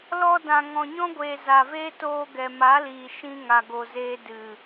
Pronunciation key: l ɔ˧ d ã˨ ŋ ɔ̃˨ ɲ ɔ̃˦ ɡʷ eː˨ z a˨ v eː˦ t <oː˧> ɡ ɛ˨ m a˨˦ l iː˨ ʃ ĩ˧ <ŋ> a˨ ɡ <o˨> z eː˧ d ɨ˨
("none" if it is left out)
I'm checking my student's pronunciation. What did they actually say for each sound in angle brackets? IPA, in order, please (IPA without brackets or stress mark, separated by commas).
oː˧, ŋ, o˨